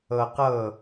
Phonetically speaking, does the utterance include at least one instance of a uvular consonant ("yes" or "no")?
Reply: yes